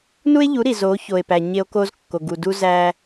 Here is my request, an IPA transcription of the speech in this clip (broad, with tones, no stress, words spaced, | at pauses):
nu˦e̯ʎu˨˦ ɾi˨zo˨˦ ço˨e̯pæ˨ ɲe˦o̯ko˦z kːo˨ɡu˨du˦z æ˦